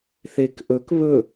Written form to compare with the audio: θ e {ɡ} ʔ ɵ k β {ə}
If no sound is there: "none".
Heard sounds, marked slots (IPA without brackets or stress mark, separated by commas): k, ɵ